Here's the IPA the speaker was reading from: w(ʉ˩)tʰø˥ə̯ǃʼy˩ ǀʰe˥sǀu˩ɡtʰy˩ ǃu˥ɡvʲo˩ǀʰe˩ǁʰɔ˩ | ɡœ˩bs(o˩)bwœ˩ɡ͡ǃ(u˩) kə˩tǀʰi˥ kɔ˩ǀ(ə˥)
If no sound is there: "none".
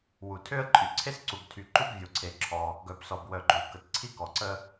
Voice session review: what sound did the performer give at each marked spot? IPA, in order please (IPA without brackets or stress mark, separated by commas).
u˩, ɔ˩, u˩, ə˥